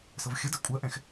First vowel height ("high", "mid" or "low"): mid